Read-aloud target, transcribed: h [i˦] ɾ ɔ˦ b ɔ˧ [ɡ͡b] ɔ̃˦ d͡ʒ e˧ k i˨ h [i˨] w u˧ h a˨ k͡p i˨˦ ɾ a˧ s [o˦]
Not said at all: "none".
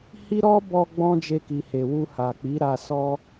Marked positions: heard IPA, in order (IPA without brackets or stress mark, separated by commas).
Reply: i˦, ɡ͡b, e˨, ɔ˦